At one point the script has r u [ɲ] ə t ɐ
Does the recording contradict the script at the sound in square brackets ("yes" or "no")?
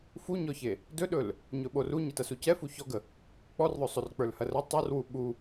no